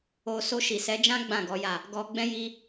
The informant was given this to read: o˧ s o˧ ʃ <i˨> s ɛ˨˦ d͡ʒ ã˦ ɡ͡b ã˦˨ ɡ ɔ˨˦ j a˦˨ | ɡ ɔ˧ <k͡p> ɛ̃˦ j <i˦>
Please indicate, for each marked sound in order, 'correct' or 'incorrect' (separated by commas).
correct, incorrect, correct